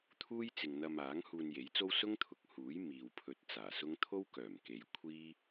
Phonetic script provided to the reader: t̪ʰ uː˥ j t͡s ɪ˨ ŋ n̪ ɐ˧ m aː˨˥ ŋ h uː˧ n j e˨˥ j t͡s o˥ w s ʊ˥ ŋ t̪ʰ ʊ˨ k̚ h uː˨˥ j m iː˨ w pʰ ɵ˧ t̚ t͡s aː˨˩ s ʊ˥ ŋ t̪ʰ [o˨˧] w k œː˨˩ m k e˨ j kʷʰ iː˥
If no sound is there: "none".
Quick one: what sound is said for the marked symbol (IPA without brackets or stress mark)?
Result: o˥